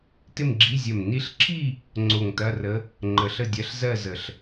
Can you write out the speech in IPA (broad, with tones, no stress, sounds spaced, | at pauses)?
t ɪ˥˧ m ɡ͡ǁ i˧˥˧ zʲ ɜ˧˩ m n i˧˥ ɬ ǁʰ i˥˧ | ŋ͡ǀ o˧˩ ŋ t ɐ˧˥˧ r ə˧˥ | ŋ͡ǃ ə˧˩ ɬ ə˥˧ dʲ ɜ˧˥˧ ɬ z ɜ˥˧ z ə˧˩ ɬ